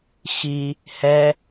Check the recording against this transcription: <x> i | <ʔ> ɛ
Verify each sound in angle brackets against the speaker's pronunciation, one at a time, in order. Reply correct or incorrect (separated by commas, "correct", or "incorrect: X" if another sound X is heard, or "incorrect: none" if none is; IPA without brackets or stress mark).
correct, incorrect: h